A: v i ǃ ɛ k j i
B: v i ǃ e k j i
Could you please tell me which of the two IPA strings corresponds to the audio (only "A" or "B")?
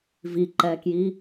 A